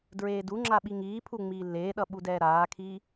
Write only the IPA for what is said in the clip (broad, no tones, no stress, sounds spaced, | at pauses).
d ɹ eː d u ŋ͡ǁ a ɓ i ŋ iː pʰ u ŋ͡m iː lː eː ɗ ʌ ɓ u d ɛː ɾ aː kʰ iː